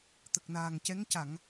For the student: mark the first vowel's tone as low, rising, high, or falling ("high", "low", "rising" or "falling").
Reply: low